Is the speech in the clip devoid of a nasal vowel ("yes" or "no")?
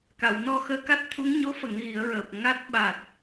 yes